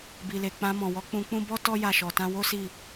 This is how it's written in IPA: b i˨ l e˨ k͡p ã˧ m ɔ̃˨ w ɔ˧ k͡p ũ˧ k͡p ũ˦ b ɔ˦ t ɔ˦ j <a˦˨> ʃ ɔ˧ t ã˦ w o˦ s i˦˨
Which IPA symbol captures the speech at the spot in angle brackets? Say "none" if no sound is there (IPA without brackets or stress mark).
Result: a˦˨